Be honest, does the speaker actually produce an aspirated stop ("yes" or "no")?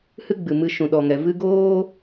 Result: no